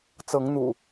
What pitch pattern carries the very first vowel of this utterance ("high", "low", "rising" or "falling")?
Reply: rising